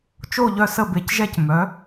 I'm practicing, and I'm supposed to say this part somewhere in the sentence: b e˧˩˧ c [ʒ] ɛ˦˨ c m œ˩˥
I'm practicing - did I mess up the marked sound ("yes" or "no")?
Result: no